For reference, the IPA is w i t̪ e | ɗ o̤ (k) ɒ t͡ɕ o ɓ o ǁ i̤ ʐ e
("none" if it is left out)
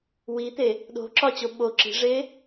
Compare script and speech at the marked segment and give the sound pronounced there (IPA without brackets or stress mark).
ǁ